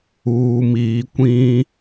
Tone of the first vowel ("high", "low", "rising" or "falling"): low